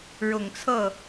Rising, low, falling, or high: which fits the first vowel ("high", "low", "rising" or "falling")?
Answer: low